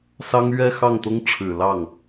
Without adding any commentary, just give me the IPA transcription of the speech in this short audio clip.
s ɑ˥ ŋ ɥ ɛ˥ x ɑ˥˩ ŋ t̪ ʊ˥ ŋ ʈ͡ʂʰ ɻ̩˨˩ l ɑ˥˩ ŋ

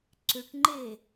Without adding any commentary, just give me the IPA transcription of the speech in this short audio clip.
ǀ ʏ ʈ ŋ͡ǃ e

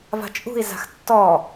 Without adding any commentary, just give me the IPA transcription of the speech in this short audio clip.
v a̤ t͡ʃʼ ṳ i̯ z a̤ x tː ɔ

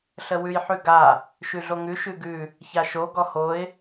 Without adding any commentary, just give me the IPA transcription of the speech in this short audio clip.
ɬ ə w ʉ j ħ ʉ ɡ a | ʃ ʉ ɮ o ŋ ʉ ʃ ʉ ɡ ʉ | ç a ʃ o ɡ ɔ h o ɪ̯

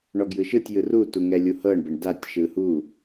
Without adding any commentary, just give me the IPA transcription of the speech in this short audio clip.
ɳ ɔ ɡ j ɯ ʃ ɯ tʲ j ɯ r u t u ŋ ɛ lʲ u h ɤ ɳ b ɛ ɳ d a tʲ ʃ ɯ h u

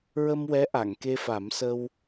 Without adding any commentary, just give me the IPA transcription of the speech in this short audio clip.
ɹ ə˧ m w ɛ˧˥ ʔ a˨˩˨ ŋ k e˧ f a˨˩˦ m s ə˧ w

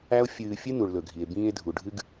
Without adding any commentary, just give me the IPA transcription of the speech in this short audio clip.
æ˦ o̯ fʲ ɨː˧ fʲ ɨ˦ n u˨ ɭ l ɵ˨ ɡʱ i˨ e̯ b ĩː˧ e̯ dʱ u˨ ɖʱ ɨ˦ ɡ

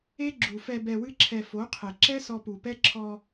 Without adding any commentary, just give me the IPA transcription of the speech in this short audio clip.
e˦ ɡ͡ǁ u˨ f ɛ˧ b ɛ˧ w ɨ˦ ǁʰ ɛ˧ f o˨˦ qʰ e˨ ǁ ɛ˦ s ɔ˧ p u˨ p ɛ˦ ǁʰ ɔ˧

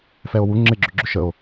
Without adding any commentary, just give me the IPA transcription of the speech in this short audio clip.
f ɛ o̯ w u ŋ͡ǁ ɪ ɡ͡ǁ ʏ ɡ͡ǁ ʏ ʃ ə o̯

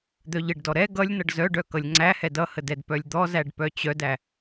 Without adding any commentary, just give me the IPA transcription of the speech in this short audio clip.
d̪ œ ʎ ə ɖ d ɔ ɾ ɛ ɡ ʌ lʲ n ʌ ɖ z œ ɖ œ k ʌ lʲ ŋ͡ǀ æ h ɛ d ʌ h ə d ɛ d p œ lʲ d̪ ɔ z æ ɖ p œ t͡ɕ œ d æ

